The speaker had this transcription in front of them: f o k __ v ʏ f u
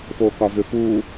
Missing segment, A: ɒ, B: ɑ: A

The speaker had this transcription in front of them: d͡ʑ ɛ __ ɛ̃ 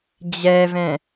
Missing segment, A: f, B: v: B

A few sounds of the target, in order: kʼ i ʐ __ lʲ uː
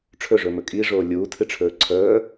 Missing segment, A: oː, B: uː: A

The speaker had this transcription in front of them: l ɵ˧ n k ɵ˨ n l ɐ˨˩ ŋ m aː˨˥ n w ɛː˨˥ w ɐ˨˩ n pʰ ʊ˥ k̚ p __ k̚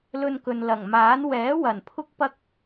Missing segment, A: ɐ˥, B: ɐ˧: A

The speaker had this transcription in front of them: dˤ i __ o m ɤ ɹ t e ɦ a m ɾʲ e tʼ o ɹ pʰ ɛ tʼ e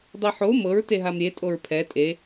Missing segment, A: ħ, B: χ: A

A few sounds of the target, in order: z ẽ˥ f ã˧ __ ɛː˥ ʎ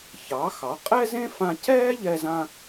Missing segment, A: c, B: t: A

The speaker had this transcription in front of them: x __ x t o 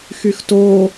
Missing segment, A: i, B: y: B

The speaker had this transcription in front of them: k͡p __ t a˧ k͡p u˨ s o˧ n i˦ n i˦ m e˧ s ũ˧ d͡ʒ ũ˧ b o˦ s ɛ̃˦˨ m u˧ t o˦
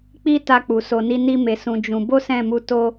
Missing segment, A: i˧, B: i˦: B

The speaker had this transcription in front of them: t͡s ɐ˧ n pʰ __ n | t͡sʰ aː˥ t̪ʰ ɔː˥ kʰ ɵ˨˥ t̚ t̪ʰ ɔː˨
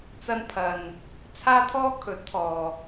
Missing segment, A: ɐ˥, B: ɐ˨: B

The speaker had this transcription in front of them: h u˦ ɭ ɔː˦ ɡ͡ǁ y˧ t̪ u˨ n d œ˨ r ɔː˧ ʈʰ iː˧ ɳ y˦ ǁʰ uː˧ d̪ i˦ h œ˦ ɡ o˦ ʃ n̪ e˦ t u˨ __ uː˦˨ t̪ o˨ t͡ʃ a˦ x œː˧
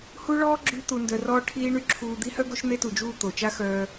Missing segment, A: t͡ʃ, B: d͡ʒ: B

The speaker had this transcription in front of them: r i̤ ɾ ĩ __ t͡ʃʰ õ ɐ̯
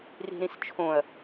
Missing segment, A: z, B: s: B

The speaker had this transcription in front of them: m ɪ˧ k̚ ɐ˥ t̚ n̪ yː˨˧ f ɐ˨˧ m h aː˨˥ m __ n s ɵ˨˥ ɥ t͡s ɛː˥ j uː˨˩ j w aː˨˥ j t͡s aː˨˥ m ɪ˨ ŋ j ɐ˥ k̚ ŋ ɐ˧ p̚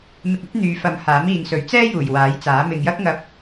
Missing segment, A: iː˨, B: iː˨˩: A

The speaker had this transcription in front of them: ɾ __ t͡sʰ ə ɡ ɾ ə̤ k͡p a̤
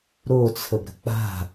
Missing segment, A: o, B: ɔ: A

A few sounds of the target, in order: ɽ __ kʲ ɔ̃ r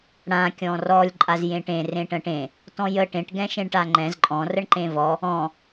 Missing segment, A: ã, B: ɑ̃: A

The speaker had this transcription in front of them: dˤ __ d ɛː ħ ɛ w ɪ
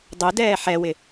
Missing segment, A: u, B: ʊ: A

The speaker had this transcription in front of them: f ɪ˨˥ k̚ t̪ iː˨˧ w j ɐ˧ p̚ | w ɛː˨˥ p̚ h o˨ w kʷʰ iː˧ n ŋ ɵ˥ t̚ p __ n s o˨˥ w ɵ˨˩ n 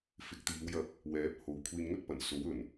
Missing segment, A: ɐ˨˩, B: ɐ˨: A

